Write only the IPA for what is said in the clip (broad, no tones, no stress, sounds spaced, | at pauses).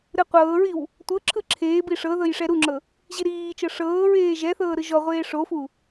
ɾ ɯ qʷ ɤː ɹ i w | tʷ ɤ ǁʰ ɯ ǁʰ eː b i ʂ ɤ ð ɤ j ʂ ɛ ɾ u ŋ͡ǁ ɤ | ʑ i ɾ iː t͡ʃ ɤ ʂ ɤː ɹ eː ʒ ɛ θ ɤː ɾ ɯ ʒ ɔ ʁʷ eː ʂ o f u